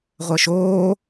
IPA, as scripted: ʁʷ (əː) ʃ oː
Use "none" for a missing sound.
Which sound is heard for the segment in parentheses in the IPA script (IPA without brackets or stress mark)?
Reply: əː